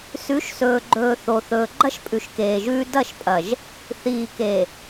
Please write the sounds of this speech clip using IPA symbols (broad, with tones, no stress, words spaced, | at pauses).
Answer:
sʉ˨˦ʃsɵː˨ɡ͡ǃɵː˨ θo˨ θɵː˨ɡ͡ǃɐ˦ʃ pʼʉ˨ʃkeː˨ʒʉː˦ dɐ˦˨ʃpʼɐ˨ʒ | θiː˨ke˨